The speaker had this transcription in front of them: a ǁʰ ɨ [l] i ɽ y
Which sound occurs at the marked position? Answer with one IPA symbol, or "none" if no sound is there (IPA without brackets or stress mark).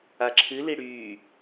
l